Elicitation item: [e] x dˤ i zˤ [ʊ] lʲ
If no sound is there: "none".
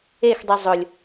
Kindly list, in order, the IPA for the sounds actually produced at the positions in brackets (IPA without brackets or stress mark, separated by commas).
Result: e, ʊ